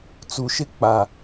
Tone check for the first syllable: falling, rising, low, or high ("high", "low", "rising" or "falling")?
low